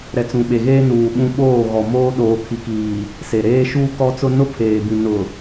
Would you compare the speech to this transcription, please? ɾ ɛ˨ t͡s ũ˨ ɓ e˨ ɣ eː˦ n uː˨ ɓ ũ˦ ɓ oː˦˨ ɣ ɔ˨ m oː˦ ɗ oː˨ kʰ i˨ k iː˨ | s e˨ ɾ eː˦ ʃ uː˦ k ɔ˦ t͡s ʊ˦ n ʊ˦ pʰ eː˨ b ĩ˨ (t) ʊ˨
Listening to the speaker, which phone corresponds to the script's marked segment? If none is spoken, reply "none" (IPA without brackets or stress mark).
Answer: n